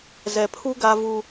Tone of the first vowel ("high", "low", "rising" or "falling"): low